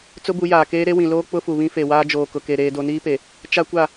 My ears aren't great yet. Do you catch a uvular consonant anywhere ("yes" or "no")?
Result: no